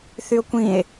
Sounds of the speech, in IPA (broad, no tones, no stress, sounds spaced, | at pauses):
θ y o̯ kʷ ĩ e̯